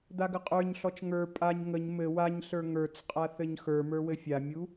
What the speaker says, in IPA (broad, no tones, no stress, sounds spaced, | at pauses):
d̪ a ɡ ə qʼ ə˞ ɲ ɬ ɔ t͡ʃ ŋ ə˞ pʼ a ɲ ŋ ə ɲ m ɘ w a ɲ ɬ ə˞ ŋ ə˞ t͡s qʼ a θ ɘ ɲ x ə˞ m ə˞ w ɘ fʲ a mʲ u